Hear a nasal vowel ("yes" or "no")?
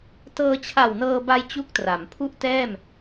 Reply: no